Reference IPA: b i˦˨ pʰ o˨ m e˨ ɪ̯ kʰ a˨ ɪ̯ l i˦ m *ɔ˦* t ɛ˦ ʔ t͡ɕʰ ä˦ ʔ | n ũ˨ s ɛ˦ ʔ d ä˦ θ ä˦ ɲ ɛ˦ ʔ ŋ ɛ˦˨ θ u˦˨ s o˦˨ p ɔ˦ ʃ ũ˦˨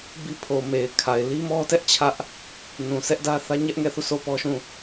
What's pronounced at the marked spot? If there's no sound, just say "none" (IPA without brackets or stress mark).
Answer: ɔ˦